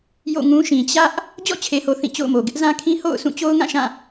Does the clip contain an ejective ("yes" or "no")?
no